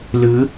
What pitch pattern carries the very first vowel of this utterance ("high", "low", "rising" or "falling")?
rising